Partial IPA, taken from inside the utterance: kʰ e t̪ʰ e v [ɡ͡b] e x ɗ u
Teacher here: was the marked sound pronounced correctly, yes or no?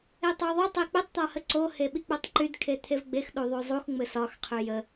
yes